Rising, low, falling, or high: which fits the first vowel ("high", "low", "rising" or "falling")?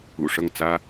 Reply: low